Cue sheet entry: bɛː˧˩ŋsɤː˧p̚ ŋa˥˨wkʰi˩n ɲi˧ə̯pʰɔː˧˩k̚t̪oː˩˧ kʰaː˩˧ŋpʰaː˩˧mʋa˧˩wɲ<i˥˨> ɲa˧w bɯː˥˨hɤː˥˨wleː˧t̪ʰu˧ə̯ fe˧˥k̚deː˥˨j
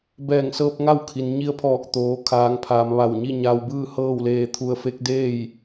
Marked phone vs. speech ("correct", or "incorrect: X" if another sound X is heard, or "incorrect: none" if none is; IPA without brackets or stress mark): correct